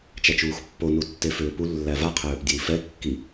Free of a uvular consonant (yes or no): no